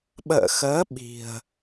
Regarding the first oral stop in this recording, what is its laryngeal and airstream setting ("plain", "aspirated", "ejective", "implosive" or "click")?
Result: implosive